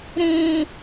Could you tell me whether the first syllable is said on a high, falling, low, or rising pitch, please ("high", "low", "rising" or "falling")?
low